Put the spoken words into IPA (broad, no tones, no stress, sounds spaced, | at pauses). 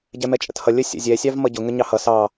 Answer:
ɟ ɛ m ɛ t͡ʃʼ ə̰ t h ʌ lʲ ə sʲ ə̰ zʲ ɛ sʲ ɑ v m ʌ ɟ ʊ ŋ ə ɲ ɑ h ʌ s ɑ